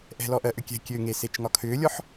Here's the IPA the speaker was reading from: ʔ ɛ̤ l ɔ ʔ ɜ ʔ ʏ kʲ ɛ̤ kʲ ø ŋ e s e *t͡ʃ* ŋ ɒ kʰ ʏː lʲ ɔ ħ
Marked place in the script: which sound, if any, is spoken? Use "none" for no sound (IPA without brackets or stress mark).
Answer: t͡ʃ